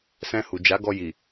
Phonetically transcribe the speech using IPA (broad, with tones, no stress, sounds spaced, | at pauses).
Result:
s ɛ̃˧ h u˨ d͡ʒ a˨˦ ɡ ɔ˧ j i˨